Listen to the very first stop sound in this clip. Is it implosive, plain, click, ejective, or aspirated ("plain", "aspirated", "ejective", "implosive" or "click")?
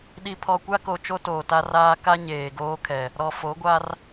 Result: implosive